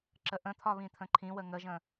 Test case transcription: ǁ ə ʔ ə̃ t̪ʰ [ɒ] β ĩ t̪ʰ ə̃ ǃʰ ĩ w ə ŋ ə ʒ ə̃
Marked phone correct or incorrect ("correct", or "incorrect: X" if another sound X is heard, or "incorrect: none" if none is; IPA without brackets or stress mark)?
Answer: correct